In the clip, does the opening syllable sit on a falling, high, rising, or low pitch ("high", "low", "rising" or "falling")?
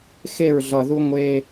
falling